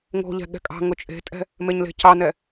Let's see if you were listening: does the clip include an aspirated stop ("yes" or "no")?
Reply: no